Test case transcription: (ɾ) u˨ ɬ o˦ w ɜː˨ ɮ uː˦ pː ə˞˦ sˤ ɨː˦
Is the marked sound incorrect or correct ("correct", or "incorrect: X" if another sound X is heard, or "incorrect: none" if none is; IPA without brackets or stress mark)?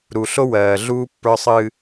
correct